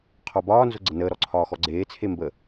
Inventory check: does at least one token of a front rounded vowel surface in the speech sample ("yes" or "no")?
no